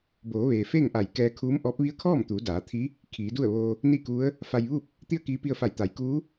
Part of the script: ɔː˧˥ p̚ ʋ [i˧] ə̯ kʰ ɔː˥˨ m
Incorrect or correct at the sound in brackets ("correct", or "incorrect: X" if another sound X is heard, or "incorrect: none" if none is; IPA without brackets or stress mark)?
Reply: incorrect: i˧˥